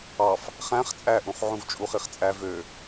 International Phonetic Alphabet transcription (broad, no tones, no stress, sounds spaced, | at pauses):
ɑ f | χ æ̃ χ t͡sʼ æ ʔ ũ χ ʕ ũ v t͡ʃʼ u χ i χ t͡sʼ æ v ø